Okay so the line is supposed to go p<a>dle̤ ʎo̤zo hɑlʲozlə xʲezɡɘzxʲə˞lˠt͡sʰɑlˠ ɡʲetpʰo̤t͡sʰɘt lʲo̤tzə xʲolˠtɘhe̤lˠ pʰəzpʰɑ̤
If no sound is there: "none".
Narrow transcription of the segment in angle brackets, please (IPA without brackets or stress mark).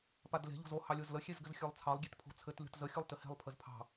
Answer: a